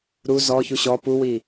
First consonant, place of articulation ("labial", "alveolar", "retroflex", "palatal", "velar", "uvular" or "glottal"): alveolar